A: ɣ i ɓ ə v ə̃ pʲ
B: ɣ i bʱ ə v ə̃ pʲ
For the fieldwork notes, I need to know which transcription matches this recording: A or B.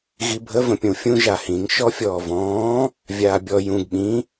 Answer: B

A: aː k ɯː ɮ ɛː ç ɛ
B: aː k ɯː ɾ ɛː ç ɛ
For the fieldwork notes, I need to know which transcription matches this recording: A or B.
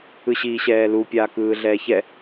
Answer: A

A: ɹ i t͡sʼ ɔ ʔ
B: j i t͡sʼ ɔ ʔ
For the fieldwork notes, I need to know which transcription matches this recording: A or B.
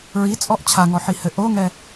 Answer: A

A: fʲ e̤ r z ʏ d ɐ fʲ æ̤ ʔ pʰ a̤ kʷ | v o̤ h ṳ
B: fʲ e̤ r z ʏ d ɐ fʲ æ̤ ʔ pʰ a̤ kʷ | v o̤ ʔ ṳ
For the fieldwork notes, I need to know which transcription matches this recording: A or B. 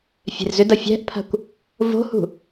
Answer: A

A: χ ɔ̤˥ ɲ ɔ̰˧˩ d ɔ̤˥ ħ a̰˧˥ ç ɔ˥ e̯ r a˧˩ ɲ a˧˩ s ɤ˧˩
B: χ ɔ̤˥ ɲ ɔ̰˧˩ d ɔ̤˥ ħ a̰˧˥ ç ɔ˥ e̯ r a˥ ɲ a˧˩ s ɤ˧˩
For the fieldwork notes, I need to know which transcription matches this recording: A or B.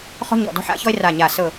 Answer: A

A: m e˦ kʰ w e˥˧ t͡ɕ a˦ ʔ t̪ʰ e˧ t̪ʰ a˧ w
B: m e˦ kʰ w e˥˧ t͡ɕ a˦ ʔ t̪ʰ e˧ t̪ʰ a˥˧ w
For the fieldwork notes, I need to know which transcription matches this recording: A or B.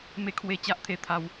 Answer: A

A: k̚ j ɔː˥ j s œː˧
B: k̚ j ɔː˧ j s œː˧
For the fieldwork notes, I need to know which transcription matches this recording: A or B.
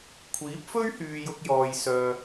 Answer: B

